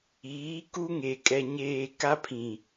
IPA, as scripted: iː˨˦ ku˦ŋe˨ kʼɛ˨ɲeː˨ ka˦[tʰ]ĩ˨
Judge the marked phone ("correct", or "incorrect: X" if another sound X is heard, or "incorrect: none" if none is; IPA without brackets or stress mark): incorrect: pʰ